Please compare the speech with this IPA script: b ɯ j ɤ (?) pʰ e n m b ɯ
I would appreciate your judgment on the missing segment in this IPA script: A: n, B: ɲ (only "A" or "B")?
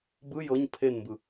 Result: B